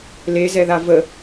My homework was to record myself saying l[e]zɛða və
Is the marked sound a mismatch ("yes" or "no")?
no